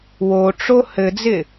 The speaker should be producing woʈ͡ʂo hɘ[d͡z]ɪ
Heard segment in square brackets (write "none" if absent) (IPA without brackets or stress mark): d͡z